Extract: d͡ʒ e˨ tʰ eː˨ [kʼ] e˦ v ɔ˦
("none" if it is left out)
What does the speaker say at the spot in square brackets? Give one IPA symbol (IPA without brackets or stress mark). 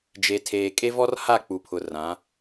kʼ